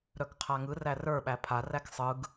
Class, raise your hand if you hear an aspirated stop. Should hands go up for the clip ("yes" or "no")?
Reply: yes